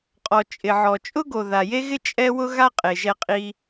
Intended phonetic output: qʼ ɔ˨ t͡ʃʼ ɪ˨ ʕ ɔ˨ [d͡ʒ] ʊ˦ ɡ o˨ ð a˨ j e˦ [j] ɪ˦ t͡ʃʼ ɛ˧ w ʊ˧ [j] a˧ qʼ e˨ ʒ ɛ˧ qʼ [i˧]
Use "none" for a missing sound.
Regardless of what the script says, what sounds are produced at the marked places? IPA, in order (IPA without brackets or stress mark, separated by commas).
t͡ʃʼ, ɣ, ɣ, i˧